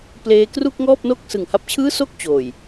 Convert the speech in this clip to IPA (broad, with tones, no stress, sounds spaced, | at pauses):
p l eː˦˥ k r u˥˩ k̚ ŋ ɔː˥˩ p̚ n o˥˩ k̚ s ɯ˨˩ ŋ h a˦˥ p̚ t͡ɕʰ ɯː˥˩ s o˥˩ k̚ t͡ɕ oː˨˩ j